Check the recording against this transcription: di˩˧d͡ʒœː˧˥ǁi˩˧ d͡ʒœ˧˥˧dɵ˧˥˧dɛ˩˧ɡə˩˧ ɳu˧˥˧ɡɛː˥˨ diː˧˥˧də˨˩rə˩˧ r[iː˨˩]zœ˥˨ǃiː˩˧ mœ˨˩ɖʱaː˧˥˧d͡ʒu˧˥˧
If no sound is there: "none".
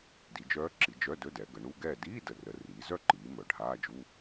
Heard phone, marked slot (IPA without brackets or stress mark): iː˩˧